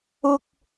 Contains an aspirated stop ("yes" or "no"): no